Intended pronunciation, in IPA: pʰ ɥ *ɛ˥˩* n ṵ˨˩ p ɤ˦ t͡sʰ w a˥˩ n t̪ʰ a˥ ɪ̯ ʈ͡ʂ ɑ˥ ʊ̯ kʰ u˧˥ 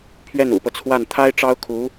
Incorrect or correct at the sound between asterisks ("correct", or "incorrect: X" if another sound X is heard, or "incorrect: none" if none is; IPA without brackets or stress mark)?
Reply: correct